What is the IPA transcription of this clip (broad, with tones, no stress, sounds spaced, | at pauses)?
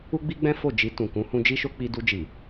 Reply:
u˦ ɡ͡b i˦ ɡ͡b ɛ̃˦ f o˦˨ d͡ʒ i˧ t ũ˨ k ũ˨˦ h ũ˧ d͡ʒ i˦ ʃ o˦ k͡p i˧ d u˧ d͡ʒ i˨